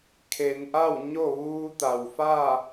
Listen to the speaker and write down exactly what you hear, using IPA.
kʰ e˩˧ n ʔ a˥˨ w ɲ o˥˨ ʋ uː˧ t̪ a˩ w f aː˥˨

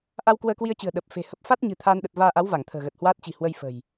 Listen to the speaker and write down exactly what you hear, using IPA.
ʔ a˧ w k w əː˧ k w i˧ ə̯ t͡ɕ ɨ̤˨˩ ə̯ ɗ ə˨˩ p̚ f e̤˨˩ h ə˦˥ p̚ f a˦˥ t̚ ɲ ɨ̤˨˩ t̪ʰ aː˧ n ɗ ə˨˩ t̚ v aː˧ ʔ a˨˦ w v a˧˩ ŋ t̪ʰ ə̤ː˨˩ ɣ ə˨˩ t̚ h w aː˦˥ t̚ t͡ɕ i̤˨˩ h w ə˧ j f ə̤˨˩ j

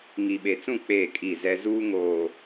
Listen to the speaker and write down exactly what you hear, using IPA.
ŋ i˨ ɓ e˨ t͡s ũ˦˨ k͡p eː˦˨ kʼ i˦˨ z ɛ˦ z uː˦ ŋ oː˨

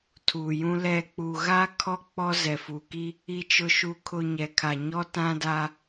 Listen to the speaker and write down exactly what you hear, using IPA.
tʰ uː˨ j ũ˦ l ɛ˦˨ k͡p u˨ ɣ a˦ kʰ ɔ˦ k͡p ɔ˦ z ɛ˨ f uː˨ k i˦ | i˨ t͡ʃ ʊ˨ ʃ u˨ kʰ ʊ˨ ɲ ɛ˨ kʰ a˨ ɲ ɔ˦ t ã˦ d a˦

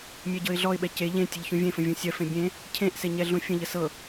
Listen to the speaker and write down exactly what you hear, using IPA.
mʲ ɛ ɟ ɤ ɪ̯ ɮ ɔ ɪ̯ ɓ ɛ c e ʎ ẽ tʲ ə ʎ ç ũ vʲ ẽ f ə̃ vʲ ũ sʲ ɜ f ẽ bʲ ẽ | cʰ ẽ ʔ s e ɲ ɛ ɮ ũ fʲ ə̃ ʎ ə s ɤ

